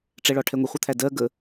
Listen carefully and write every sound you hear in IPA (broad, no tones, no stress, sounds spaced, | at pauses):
ʈ͡ʂ ɛ ɭ ɒ ʈʰ ɛ ŋʷ ɛ χʷ ʌ t̪ʰ æ d ɜ ɡ ə